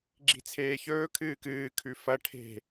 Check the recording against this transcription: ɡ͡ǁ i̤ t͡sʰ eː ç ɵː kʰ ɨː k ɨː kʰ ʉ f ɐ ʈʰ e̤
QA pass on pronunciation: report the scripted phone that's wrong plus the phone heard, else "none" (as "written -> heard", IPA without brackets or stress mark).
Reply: none